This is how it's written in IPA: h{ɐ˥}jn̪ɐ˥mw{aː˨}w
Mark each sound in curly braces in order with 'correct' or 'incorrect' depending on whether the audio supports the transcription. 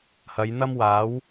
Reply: incorrect: ɐ˨˧, incorrect: aː˨˥

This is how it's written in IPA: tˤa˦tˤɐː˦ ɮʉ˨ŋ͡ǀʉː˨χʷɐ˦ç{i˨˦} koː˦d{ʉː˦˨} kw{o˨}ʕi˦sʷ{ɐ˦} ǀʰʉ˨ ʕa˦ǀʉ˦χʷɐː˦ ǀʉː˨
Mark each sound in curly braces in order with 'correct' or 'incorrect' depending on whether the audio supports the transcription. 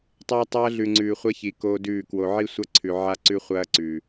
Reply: incorrect: i˨, correct, correct, correct

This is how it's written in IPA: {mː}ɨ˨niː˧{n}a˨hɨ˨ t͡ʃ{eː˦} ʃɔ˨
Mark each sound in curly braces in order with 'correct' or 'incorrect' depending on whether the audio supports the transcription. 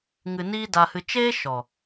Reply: incorrect: ŋ, incorrect: d, correct

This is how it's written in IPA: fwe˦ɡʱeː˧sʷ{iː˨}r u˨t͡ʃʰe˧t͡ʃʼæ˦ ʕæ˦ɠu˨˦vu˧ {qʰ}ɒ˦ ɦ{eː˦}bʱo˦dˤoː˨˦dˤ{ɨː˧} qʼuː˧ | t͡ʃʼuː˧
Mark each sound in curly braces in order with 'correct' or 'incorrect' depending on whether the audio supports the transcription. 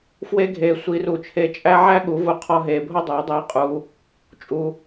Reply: incorrect: iː˧, correct, incorrect: eː˧, incorrect: iː˧

